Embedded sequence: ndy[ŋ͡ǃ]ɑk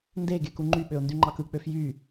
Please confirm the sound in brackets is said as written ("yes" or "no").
yes